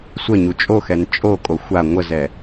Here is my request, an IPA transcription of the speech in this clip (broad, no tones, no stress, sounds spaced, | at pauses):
sʷ ə ɲ u t͡ʃʼ o x ɛ n t͡ʃʼ o kʼ o xʷ a ŋʷ ə z ɛ